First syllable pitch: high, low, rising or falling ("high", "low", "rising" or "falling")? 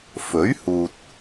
rising